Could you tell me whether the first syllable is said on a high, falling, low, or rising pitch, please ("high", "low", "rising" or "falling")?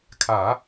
low